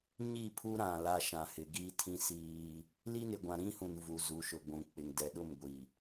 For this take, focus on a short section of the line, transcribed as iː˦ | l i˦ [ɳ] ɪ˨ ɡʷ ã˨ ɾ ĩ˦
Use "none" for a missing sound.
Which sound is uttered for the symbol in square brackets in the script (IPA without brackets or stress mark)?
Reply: n